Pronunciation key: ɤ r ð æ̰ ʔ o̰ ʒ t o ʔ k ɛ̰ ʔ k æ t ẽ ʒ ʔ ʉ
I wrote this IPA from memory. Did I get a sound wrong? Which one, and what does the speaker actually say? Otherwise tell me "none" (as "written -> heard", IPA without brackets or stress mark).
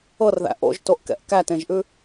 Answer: none